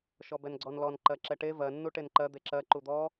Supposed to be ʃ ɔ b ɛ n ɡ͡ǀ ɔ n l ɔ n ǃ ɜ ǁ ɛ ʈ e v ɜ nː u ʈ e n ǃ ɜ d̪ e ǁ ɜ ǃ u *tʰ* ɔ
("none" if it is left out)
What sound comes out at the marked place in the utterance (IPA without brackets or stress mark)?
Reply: d̪